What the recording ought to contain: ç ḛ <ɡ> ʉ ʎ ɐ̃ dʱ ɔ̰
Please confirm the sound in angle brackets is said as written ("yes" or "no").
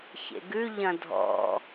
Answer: yes